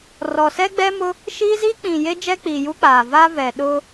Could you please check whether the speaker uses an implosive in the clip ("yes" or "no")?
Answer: yes